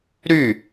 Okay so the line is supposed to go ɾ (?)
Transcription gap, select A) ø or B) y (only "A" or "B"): B